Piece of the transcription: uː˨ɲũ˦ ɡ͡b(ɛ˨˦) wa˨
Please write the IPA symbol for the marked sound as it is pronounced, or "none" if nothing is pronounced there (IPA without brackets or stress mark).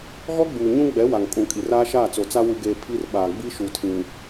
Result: ɛ˨˦